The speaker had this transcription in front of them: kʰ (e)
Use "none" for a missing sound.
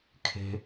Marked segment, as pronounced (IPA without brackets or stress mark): e̤